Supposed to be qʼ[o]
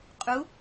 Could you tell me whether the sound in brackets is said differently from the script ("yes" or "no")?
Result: yes